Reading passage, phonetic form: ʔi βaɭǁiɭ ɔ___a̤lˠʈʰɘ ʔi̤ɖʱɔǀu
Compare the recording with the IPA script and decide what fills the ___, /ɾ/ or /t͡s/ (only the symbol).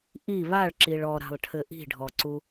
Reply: ɾ